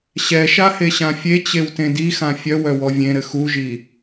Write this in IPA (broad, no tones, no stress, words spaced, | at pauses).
ɕɛʃaheɕã fʲet͡ɕewtẽ dixã fʲœwœwɔ vʲẽɾɘ xuʒi